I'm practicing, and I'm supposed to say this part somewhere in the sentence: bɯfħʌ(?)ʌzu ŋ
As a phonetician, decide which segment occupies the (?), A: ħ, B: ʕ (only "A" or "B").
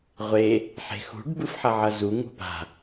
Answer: B